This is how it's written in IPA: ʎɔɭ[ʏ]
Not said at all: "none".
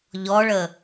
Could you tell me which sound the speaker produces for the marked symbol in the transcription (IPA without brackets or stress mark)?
ə